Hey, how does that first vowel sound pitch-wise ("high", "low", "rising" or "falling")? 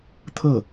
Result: falling